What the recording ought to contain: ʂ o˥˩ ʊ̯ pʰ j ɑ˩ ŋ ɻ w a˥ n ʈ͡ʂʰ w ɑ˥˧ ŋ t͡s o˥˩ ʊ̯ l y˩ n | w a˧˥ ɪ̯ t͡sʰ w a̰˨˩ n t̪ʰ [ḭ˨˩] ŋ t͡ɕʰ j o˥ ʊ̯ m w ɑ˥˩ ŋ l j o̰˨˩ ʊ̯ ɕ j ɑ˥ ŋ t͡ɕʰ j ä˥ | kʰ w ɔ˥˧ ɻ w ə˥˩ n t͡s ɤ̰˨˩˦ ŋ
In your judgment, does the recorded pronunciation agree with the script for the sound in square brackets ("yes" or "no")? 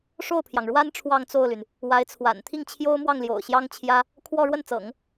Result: no